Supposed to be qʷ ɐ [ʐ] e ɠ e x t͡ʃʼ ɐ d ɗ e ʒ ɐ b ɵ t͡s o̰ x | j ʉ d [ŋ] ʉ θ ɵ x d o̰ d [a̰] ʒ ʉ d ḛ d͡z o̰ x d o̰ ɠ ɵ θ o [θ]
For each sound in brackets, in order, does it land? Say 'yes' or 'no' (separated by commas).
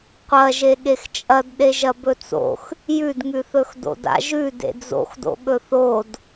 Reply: no, yes, yes, no